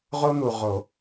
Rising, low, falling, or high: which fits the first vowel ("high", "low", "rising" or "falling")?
high